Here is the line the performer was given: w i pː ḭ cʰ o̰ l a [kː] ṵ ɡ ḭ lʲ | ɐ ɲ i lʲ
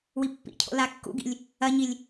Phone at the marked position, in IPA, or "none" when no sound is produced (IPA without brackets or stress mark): kː